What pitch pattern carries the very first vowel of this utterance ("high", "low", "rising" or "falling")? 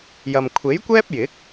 low